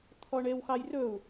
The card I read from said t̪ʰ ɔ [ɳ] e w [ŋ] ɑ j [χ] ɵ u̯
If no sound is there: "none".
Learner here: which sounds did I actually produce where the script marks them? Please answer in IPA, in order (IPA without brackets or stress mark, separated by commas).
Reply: ɳ, x, r